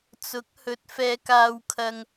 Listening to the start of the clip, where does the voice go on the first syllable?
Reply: rising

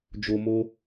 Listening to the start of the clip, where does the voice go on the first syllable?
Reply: low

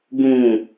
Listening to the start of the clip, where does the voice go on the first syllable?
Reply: low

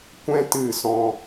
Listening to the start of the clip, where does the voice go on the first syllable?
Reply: high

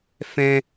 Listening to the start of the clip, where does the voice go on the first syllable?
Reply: high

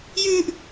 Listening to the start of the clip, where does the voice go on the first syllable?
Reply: high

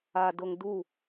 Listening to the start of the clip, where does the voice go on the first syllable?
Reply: low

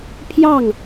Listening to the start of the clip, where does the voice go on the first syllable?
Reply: falling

